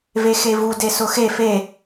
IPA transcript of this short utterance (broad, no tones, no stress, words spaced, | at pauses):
vexevu desʊxe fe